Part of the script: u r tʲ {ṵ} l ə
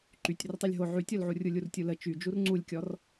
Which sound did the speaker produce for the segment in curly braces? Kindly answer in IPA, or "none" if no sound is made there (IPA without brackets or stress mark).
u